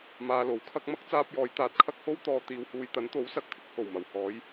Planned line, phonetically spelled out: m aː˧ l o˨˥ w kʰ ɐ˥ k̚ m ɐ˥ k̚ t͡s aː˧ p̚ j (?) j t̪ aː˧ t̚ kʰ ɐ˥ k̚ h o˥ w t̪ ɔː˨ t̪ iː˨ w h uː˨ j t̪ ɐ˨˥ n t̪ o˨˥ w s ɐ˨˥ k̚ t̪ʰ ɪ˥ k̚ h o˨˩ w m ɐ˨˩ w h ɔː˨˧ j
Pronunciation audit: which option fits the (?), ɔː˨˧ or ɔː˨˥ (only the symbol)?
ɔː˨˧